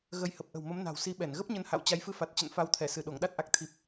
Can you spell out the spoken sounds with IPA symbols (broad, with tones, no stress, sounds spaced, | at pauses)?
ɣ ə˧ j h ə˨˩ p̚ ʔ ə̤˨˩ w m ə˨˦ m n a̤˨˩ w s i˨˦ ɓ ɛ˧˩ n ɣ ə˦˥ p̚ ɲ ə˨˦ n h a̰˧˨ w t͡ɕ a˨˦ j f ɨ˧ f a˨˩ t̚ t͡ɕ ə̰˧˨ n f a˨˦ w t̪ʰ ɛ˧˩ s ɨ˧˩ ɗ o˧˩ ŋ ɗ a˦˥ t̚ ʔ a˨˩ k̚ t̪ʰ i˨˩ p̚